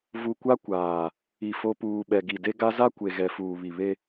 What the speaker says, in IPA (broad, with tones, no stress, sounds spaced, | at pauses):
v u˨ kʷ a˦ kʷ aː˨ | i˨ f o˨ p uː˨ ɓ ɛ˨ ɡ i˨ d e˦ ɡ a˦ z a˦ kʷ e˨ ɣ ɛ˨ f uː˨ β i˨ β e˦